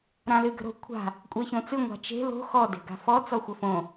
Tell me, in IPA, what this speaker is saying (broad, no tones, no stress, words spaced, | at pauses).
ɾãlɨɡə̤ɾo̤ kʷʰa̤ | kʷʼeçõt͡sɨ ŋʷa̤t͡ʃe̤ lo̤ xɔ de̤ɡa̤fɔ t͡sɔxʷəfõ